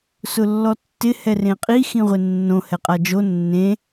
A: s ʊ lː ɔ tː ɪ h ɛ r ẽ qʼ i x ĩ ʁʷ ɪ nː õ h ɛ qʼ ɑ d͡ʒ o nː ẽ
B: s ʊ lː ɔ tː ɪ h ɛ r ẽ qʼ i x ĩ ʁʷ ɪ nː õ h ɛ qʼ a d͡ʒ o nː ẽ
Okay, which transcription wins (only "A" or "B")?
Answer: B